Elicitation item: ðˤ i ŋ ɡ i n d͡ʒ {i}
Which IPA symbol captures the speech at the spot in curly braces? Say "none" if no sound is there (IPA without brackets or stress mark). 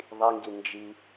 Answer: i